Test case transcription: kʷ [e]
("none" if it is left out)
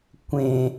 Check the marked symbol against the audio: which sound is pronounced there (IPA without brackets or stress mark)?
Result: ẽ